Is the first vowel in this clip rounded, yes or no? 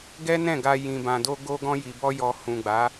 no